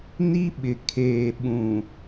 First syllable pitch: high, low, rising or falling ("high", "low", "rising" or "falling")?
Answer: high